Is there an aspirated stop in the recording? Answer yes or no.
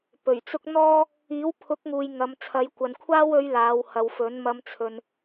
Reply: yes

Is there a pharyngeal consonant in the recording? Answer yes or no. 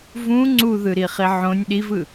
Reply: yes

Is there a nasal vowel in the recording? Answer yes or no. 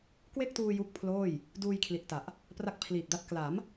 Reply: no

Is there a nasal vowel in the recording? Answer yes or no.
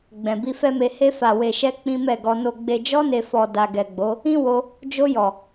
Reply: yes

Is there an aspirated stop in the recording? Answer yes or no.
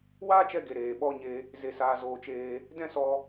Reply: no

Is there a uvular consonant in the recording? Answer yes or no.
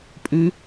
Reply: no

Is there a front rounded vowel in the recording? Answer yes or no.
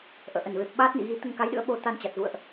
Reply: no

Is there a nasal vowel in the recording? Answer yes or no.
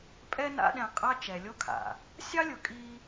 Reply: yes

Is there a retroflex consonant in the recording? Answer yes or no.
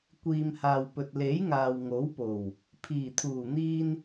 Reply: no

